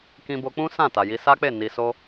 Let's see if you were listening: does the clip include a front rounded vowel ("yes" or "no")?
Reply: no